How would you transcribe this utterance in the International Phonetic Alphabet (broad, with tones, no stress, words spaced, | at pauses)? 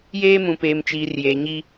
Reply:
jeː˦mũ˨peː˨m t͡ʃiː˨rjeː˨ɲi˦